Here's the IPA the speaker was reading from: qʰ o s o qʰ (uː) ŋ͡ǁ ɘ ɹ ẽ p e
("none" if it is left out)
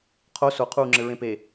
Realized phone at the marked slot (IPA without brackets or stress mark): uː